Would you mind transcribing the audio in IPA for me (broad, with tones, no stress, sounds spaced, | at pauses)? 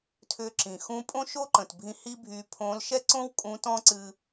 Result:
tʰ ʏ˧ ǁ ĩ˩ x ũ˧˥ pʼ õ˥ ʃ o˥ ǃ ə̃˩ t bʱ ĩ˧ h i˥ bʱ y˧ pʰ õ˧˥ l ʃ ɛ˥ ǀ õ˥ w kʼ ũ˧˥ t ɔ̃˥ ǀ ɨ˧